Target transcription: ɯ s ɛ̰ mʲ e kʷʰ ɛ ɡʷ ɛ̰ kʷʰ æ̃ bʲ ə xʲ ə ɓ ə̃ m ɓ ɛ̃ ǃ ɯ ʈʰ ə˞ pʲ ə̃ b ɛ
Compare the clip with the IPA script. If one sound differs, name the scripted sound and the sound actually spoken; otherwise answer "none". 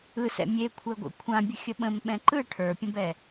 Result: æ̃ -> ã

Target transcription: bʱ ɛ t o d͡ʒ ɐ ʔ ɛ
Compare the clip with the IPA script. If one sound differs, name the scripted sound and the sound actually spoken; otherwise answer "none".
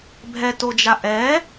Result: ɐ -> a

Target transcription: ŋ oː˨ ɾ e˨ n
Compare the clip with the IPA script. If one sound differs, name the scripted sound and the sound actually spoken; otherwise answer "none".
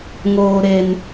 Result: none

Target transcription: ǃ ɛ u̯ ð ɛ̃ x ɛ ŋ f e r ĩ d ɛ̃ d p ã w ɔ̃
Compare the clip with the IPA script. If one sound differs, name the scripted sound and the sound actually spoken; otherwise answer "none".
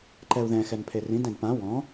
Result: f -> pʰ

